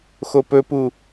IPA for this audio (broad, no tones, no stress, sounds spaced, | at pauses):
x o p ɵ p u